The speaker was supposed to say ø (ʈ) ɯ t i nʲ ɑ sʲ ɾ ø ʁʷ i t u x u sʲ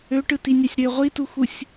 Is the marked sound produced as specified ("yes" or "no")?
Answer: yes